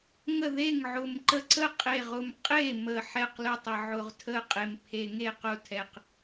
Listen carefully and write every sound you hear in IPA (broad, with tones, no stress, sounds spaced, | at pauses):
ŋ ə˥˩ ð e˥˩ ŋ ʕ ʊ˨˩ m ǃ ə˥˩ ǀ ə˥˩ qʼ e˨˩ ʁ ʊ˨˩ m qʼ e˥˩ m ə˨˩ ħ ɛ˥˩ q l ʊ˥˩ tˤ ə˨˩ ʕ ʊ˨˩ ʁ tʰ ə˥˩ qʼ e˨˩ m pʰ e˨˩ ŋ e˥˩ q ʊ˥˩ tʰ ɛ˨˩ q